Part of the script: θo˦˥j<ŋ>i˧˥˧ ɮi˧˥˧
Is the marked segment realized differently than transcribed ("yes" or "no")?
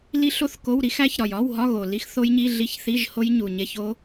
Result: yes